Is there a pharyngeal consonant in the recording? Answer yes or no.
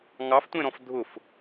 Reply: no